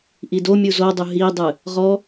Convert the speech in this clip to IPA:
ʔidomʲu zodˤu ɦidˤɨ | ʁɔ

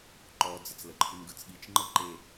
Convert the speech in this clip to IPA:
ǃɔd͡zət͡s ləǃʰɯnɡɯt͡sɠit͡ʃ ŋ͡ǃəǃe

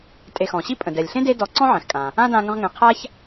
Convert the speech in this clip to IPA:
tʼe˨xɔ̃˩ɕi˥ pʼə̃˩ dɛ˩lʲɬẽ˥ de˦dɔ˨ ǀɔ̃˥ʕɛ̃˩xkʼã˩ | ã˥ dã˦ŋə̃˦ʁŋɛ̃˨ qʰa˦ç

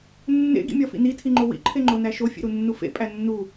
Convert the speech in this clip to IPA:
nːḛ ɡḭmʲɒfḭni tʰiŋ͡ǃowḭ ǃʰeŋ͡ǃonæʃo fʲḛɾunːufḛ pʼænːu

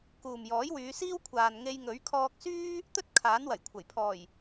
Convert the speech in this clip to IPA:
kuː˨mjɔː˨˥jwyː˨˧ siː˥wkʷʰaː˨nŋe˧j ŋɵ˨˥ɥkʰɔː˧k̚syː˥ | t̪ɵ˥t̚ kʰaː˨˥nwɐ˨˩j kʷʰɐ˨˩j pʰɔː˨˩j

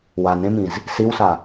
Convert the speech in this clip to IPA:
wanɾẽmĩz | siwsa

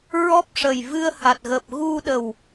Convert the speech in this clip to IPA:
ɹɔ˦˥p̚ ʂəː˨˩jvɨ˧ə̯ha˨˩t̚ɣəː˨˩p̚ ɣu˧ɗə˨˩w

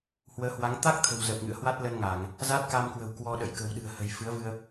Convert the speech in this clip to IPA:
hwəː˨˦hwa˨˦ŋ t̪a˦˥k̚ t̪ʰə̤˨˩wzə˨˩p̚ ŋɨ̰˧˨ə̯hwa˦˥t̚lə˧n ŋa˧˩˨ŋ | za˦˥t̚ka˧mkwə̤˨˩w kwɔ˧ɗə̰˧˨j kə̤˨˩wɗɨ̤˨˩ə̯hə̤˨˩j fɨ˨˦ə̯vɨ˧ə̯

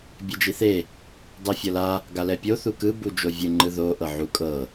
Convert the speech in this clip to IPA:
bʲɛd͡ʒiθe | dˤɛfʲɤla | ɡalɛpʲo θukɯ bud͡ʒovʲɯ ŋ͡ǃɯðo ʔɤʕukʼɤ

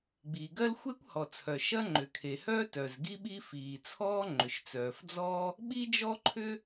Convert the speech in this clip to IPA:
ɡ͡biː˩ɡɜ˥l xʷe˥kʷhɔ˩t͡sʰœ˩ ʃɐ˥ŋ͡ǃʏ˩ kʰe˩hœː˥ tœ˩z ɡi˥ɓi˥ fiː˩t͡sʰɔː˥ ŋ͡ǃʏ˩ʃt͡sœː˩fd͡zɔː˥ | ɓi˥d͡ʒɔ˥ǃʰʏ˥

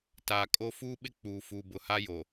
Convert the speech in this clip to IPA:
taː˨kʼo˦ fuː˦ɓɪ˦ k͡puː˨ fuː˨bʊ˨ha˦jo˨

